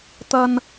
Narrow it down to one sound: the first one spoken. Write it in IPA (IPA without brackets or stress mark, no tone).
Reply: t̪